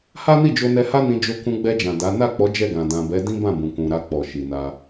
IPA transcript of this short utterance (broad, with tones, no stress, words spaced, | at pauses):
ha˦ni˦˨d͡ʒo˧ nɛ˧ha˦nĩ˧ d͡ʒo˧kũ˧ɡ͡bɛ˧d͡ʒã˨ da˨˦ na˦˨k͡pɔ˨˦ d͡ʒɛ˦˨ɡã˨ dã˨bɛ˨˦ dĩ˦bã˦˨bũ˨kũ˨ ɾa˧k͡pɔ˨ʃi˨na˧